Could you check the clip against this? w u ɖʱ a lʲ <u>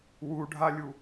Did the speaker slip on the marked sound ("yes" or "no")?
no